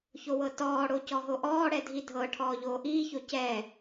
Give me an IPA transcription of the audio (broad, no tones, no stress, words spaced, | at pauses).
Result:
çowɤtɔːɽo cɔɦoʔɔːɽɛ dʱidʱɤʈʰɔː ʎoːʔiːço cɛ